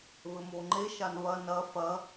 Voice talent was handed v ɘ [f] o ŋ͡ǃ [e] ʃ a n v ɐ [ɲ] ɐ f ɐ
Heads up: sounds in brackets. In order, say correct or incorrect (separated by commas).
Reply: incorrect, correct, incorrect